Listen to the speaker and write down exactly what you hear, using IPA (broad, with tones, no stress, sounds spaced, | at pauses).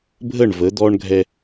bʱ ə˦˨ ɳ v ə˨˦ d̪ ɔ˦ ɳ ɡʱ ɛ˦